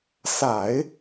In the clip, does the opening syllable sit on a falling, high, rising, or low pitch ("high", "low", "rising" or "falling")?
low